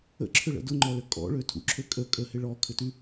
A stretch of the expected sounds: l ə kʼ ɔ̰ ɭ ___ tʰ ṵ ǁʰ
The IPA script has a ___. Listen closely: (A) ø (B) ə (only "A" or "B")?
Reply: A